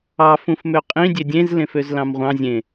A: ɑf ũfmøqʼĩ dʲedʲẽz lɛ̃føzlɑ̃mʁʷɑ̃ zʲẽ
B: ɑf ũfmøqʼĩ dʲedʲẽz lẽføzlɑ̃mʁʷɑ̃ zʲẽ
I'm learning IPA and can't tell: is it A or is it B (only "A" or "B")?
B